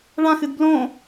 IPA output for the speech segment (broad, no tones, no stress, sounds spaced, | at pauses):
ɭ ã x ɨ d b l õ